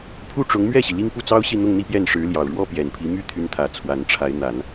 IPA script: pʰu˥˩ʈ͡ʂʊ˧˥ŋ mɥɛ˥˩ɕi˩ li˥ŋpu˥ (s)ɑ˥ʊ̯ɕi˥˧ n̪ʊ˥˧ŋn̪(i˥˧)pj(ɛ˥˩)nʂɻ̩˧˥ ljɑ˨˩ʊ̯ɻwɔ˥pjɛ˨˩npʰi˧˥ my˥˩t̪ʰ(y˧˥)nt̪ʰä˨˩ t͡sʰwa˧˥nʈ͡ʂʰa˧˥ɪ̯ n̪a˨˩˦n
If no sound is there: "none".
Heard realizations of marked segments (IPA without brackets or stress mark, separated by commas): t͡s, i˥˧, ɛ˥˩, y˧˥